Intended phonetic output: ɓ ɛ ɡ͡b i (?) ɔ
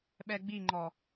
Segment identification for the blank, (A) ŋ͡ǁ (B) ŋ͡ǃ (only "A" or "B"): B